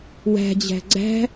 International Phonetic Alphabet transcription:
w æ̤ d͡ʑ æ̤ ɡ͡ǀ æ̤

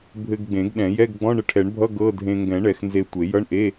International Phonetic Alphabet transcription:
bʱ ɘ˧ ɡ ɡ͡b ẽ˨˩˦ ɡ ɗ ɛ̃˨˩˦ j ɛ˧˥˧ ɡ ɡ͡b ɔ̃˧˥˧ ɳ ɘ˧ ʈʰ ɛ˨˩˦ ɳ bʱ ʌ˧˥˧ ɡ ɤ˧˥˧ dʱ ẽ˧ ŋ ɡ ɛ̃˨˩˦ ɳ ɛ˨˩˦ x n z e˧ tʷ e˨˩˦ j ʌ˧˥˧ ɳ ʔ e˧˥˧

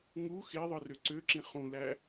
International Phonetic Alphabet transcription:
ŋ u x e ðˤ ɯ r ø ǀ ø ǁ ĩ χ ũ l æ

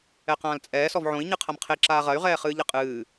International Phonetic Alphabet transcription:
ɛ q ãː l t͡sʼ ɛː s ɔ v ʕ õ i̯ ɲ ɨ qʰ ɐ m qʰ e ǁ aː ʁ ɐ y̯ ʁ ɛː χ ɨː ʎ ɘ qʼ ɨː

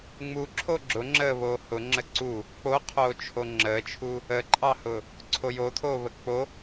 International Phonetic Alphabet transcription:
ŋ͡m u ǁʰ o ɡ͡ǁ ʊ ŋ͡ǁ əː β oː h ʊ ŋ͡ǁ ə ǀ u | k͡p o qʰ oː t͡ʃʰ o ŋ͡ǁ əː t͡ʃʰ u | ə ǃʼ ɑ h ʊ | ǀʰ o j o tʰ oː β ə k͡p o

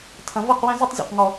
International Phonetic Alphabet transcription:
tʰ ɐ̃˨ v ɤ˦˨ q w ɛ̃˦ z ə˦ tˤ zʲ o̰˨ q ŋ ɔ˦

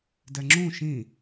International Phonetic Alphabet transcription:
d ɛ ŋ͡ǁ ũ ʃ ĩ

